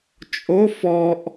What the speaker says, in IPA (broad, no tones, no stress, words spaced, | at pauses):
t͡ʃʼo fɔʔ